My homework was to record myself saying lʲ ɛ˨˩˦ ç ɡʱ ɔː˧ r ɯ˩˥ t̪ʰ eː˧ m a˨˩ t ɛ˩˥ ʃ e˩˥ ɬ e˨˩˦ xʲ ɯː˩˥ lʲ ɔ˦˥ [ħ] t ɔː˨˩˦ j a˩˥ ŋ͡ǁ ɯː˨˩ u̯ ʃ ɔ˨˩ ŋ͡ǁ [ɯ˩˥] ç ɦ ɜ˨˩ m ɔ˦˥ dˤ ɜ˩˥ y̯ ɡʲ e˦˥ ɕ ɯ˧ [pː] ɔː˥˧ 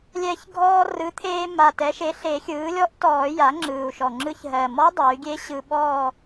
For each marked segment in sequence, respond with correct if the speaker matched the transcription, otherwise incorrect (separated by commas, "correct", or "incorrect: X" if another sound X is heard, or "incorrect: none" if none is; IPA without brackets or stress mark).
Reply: incorrect: ʔ, incorrect: ɯ˧, incorrect: ɓ